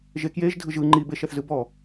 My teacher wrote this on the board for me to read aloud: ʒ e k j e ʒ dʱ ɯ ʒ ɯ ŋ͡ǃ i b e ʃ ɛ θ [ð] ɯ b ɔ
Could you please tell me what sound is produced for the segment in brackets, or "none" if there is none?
z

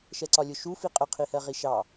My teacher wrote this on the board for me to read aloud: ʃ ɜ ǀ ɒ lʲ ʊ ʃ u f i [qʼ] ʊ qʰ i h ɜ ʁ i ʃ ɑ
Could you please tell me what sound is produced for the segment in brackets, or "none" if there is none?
qʼ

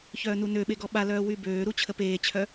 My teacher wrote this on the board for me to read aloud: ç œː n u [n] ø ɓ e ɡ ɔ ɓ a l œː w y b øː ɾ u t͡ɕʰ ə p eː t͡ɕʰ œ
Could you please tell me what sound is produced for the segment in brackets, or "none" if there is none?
n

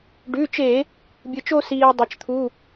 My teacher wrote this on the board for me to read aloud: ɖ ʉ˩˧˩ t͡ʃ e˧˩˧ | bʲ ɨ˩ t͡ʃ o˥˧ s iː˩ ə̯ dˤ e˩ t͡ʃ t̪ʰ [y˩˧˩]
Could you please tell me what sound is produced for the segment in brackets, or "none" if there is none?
u˩˧˩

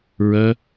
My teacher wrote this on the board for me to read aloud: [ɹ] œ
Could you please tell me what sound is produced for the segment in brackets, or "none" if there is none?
ɹ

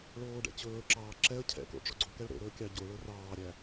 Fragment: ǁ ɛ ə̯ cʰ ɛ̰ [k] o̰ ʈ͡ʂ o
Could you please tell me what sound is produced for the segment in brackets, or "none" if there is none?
k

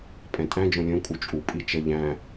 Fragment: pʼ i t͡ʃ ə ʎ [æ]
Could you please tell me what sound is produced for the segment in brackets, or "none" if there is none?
æ̃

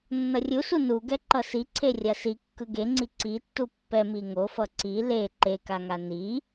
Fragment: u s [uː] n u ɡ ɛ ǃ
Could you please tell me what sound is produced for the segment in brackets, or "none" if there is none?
u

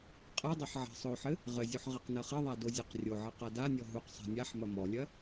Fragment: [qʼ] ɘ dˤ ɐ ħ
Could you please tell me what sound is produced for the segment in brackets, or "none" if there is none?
qʼ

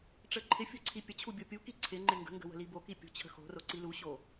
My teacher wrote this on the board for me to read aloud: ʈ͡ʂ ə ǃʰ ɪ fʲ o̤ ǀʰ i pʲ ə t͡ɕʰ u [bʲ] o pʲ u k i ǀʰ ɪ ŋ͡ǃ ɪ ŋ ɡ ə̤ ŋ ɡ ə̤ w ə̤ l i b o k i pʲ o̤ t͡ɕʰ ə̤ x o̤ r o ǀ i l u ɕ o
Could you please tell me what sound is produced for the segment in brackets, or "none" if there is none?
bʲ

